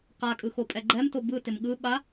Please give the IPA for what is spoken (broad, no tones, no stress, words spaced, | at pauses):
qakʼɯxopʼɛ ɡ͡ǃɛmto bɯtɪm ɠɯ ɓa